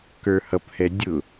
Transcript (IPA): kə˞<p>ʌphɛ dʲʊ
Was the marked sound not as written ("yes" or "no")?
yes